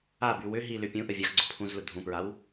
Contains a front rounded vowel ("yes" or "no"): yes